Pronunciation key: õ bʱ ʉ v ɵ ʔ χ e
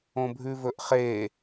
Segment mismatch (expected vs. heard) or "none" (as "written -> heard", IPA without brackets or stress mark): none